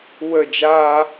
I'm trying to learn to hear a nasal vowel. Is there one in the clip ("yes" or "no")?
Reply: no